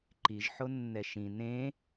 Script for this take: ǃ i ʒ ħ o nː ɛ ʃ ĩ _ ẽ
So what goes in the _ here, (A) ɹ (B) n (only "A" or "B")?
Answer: B